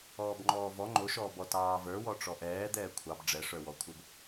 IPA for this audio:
ɔːbŋ͡ǃɔːvɔ ŋ͡ǃoʃɔːb ɔtɑːvə˞ wɔʈ͡ʂɔʔɛː d̪ɛːkʷʰɑb ɖ͡ʐɛʂə˞wɔkʷʰə˞b

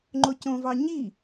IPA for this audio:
ŋ͡ǃocõvɑ ɲi

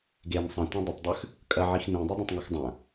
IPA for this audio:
ɡen sˤɐ̃tʷɐ̃ dˤətˤdˤʉx | kʼɐʕix nĩdˤidˤẽtˤŋɛx dˤɐ̃

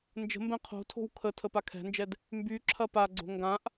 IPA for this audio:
nd͡ʒə̤mbɛ̃ qʰo̤tʰo̤w kʰə tʰəpakʰɛ̤nd͡ʒɛd | mby ǁʰɐpaɡ͡ǀo̤ ŋɡãʔ

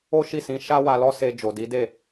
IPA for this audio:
o˦ʃi˦˨sĩ˨˦ ʃa˦wa˧lɔ˦se˧ d͡ʒo˨di˨˦de˦˨

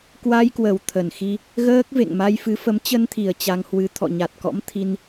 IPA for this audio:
kwa˧jkwə˨˩w t̪ʰə˨˩nxi˧ | ɣəː˦˥k̚ vḛ˧˨ŋma˧j fɨ˨˦fə˨˦m t͡ɕə˧nt̪ʰi˨˩ə̯ t͡ɕa˧ŋhwɨ˧ t̪ʰɔ̰˧˨ɲa˨˩t̚kɔ̰˧˥m t̪ʰi˧n

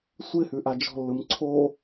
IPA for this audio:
sʷɪhʉ ʔad͡ʒɔ̤lːɯm ǀʰo

